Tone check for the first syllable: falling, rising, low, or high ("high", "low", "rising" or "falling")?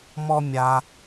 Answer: high